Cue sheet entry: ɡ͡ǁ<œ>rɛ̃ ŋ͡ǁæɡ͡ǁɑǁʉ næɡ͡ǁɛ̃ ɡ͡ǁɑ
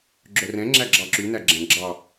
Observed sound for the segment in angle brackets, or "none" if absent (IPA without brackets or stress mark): œ